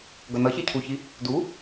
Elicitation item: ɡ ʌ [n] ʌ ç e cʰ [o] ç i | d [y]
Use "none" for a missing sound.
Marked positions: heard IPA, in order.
n, u, u

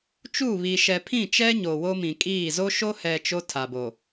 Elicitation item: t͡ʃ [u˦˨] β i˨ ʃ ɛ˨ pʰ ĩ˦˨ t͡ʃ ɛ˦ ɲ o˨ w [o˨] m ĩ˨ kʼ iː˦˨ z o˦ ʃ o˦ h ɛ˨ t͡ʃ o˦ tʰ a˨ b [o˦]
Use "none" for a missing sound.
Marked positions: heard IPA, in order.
u˦˨, o˦, o˨

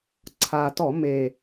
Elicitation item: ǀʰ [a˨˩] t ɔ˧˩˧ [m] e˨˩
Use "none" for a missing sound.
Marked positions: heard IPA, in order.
a˨˩, m

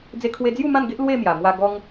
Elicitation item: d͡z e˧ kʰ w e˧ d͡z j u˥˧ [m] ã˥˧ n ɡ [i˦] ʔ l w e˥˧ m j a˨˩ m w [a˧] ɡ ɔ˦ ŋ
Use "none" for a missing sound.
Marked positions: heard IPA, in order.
m, e˦, a˧

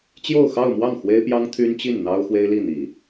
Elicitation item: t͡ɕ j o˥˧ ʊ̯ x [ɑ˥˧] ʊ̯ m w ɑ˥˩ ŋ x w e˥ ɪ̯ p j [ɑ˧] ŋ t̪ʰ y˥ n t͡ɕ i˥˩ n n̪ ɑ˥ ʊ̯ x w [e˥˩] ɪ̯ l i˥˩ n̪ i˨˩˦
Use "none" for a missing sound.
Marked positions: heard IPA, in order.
ɑ˥˧, ɑ˥, e˥

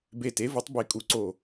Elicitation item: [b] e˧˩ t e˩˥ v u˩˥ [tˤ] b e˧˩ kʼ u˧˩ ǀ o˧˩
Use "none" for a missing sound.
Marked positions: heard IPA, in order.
b, tˤ

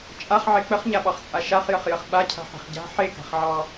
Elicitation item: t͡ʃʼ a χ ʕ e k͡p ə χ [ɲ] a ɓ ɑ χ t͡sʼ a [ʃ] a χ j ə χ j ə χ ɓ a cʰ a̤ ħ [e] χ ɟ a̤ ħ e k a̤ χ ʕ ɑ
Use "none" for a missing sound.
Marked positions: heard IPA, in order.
ɲ, ʃ, e̤

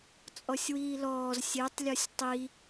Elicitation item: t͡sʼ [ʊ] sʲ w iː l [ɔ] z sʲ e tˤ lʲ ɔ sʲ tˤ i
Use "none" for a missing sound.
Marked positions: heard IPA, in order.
ɔ, ɔː

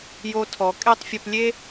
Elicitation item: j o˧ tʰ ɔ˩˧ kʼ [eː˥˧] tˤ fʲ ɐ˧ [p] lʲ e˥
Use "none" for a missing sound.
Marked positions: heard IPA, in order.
e˥˧, p

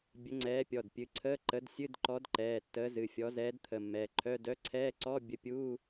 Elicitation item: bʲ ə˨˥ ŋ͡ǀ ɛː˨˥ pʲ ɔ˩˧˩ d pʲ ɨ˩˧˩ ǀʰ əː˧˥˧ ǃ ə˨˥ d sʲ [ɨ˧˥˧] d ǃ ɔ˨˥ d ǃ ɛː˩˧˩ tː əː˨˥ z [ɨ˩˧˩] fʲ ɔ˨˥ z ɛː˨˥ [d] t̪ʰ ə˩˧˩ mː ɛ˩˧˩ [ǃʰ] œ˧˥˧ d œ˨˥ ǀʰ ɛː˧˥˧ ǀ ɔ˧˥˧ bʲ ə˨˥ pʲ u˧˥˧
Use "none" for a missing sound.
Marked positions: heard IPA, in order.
ɨ˧˥˧, ɨ˩˧˩, d, ǃʰ

